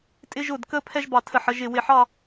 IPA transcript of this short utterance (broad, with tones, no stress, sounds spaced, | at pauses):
tʼ ɪ˧ ʒ ʊ˧˩ d k ə˧ pʰ ɛ˥ ʒ b ɑ˧˩ tʰ ə˧˩ ħ ə˥˧ ʒ ɪ˧˩ w ɪ˧˩ ħ ɑ˥˧